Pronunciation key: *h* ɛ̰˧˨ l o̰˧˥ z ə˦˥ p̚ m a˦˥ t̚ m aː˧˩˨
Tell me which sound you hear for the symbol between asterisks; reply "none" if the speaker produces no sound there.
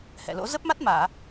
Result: h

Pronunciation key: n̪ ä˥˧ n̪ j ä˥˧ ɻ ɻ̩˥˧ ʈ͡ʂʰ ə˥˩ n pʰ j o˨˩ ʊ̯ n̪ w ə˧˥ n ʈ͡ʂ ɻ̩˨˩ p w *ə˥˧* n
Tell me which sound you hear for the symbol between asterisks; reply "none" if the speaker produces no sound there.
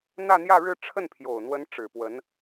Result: ə˧˥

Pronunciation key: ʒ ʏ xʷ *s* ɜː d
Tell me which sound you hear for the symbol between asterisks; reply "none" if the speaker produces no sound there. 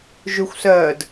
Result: s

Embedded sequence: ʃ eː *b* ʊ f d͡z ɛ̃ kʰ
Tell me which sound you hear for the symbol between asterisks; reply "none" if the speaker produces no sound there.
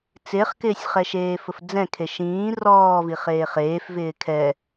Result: f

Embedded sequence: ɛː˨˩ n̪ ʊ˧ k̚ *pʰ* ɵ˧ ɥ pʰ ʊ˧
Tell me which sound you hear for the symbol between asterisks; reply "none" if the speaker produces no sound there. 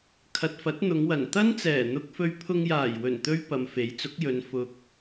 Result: f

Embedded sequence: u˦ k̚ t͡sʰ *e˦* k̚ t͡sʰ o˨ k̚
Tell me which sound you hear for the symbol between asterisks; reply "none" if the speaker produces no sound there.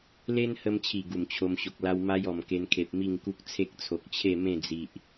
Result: e˦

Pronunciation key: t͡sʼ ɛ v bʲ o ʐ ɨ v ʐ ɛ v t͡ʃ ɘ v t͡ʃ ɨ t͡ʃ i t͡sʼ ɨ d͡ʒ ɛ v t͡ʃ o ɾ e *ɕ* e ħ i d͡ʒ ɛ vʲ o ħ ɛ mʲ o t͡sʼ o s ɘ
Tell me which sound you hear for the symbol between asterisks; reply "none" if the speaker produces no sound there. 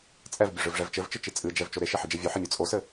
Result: ʃ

